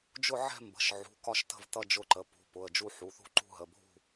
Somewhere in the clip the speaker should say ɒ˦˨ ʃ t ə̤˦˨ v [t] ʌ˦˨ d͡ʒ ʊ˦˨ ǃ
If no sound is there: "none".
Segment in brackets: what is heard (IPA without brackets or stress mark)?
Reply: t